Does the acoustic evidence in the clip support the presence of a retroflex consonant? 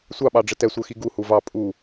yes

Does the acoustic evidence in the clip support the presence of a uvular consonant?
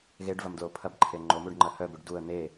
no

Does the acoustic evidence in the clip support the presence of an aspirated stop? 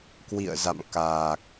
no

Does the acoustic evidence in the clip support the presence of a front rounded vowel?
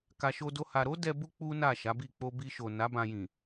no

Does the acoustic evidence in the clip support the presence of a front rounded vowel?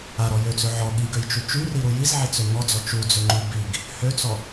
yes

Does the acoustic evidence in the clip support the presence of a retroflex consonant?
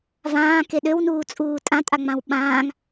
no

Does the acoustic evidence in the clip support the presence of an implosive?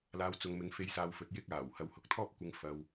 no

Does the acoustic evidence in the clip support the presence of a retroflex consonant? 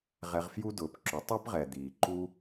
no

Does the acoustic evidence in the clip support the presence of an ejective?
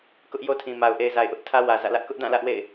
no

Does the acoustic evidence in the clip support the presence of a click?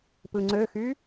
yes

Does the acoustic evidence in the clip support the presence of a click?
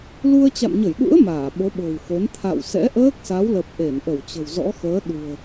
no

